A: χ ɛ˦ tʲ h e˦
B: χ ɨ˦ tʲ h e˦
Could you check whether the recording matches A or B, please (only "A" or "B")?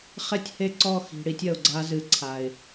A